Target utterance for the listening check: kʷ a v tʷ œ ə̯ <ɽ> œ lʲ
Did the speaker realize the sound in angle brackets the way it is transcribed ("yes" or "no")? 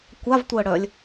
yes